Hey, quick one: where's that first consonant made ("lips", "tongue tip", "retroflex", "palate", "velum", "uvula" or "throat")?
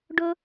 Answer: retroflex